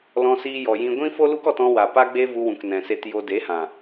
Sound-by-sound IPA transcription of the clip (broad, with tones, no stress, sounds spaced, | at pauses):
l ɔ̃˧ s iː˧ j ɔ˨ j ĩ˧ ɡʷ ĩ˦ f o˦ l u˦ k ɔ˧ t ɔ̃˧ w a˨ p a˦ ɡ͡b e˦ v u˧ w ũ˨ k n ɛ̃˨ s e˧ t j o˧ d e˨˦ h ã˨